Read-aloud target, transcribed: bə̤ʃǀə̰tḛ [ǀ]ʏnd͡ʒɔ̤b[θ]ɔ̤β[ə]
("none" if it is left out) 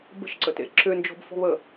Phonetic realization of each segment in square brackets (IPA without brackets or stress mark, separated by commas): ǁ, f, ə